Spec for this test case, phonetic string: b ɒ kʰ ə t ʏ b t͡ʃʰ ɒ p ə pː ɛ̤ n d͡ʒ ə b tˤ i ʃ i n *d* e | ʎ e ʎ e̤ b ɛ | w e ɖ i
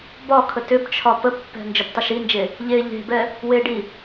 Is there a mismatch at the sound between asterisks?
yes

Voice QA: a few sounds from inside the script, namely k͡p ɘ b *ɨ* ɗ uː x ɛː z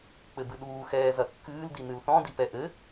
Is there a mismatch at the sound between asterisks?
no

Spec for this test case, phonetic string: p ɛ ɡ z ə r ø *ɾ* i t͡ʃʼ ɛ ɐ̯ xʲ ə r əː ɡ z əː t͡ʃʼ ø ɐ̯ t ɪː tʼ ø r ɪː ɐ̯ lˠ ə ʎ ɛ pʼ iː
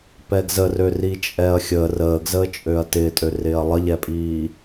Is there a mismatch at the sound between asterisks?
yes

